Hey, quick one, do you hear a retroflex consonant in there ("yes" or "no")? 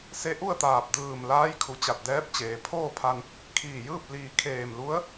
no